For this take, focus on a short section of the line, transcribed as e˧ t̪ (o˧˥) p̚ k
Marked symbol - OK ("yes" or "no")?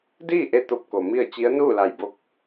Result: yes